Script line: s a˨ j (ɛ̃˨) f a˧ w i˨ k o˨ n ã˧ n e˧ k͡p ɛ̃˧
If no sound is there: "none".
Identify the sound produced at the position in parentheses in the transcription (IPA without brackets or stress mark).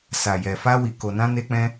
ɛ˨